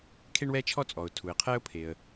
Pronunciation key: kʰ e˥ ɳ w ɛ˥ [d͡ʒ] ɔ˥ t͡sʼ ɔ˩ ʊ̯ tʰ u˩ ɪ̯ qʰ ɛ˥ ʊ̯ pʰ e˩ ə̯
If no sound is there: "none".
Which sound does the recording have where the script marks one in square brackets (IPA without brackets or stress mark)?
t͡ʃʰ